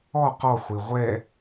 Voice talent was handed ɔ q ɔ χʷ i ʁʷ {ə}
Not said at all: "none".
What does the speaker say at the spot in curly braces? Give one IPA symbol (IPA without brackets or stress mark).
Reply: ɛ